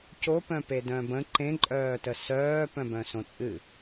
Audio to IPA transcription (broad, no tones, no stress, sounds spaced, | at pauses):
c o p œ̃ p e d œ̃ b ə̃ ǃ ẽ ǃʼ œː t ə s œː p œ̃ b œ̃ s õ t͡sʼ ɨ